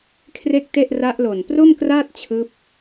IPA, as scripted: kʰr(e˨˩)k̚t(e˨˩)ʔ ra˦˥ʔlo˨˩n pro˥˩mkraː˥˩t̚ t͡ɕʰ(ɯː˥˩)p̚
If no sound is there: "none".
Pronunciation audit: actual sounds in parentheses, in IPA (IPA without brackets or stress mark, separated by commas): e˥˩, e˥˩, ɯː˦˥